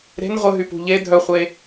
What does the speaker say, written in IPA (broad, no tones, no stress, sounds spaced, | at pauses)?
ɾ e̤ n ʁʷ ə ɦ y p ṳ ʎ e dʱ œ χʷ e